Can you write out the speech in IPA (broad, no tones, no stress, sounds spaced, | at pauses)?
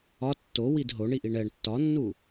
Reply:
ɒ tː o w i d ɦ o ɳ i ʔ i ɳ ɛ ɳ tː ɒ nː u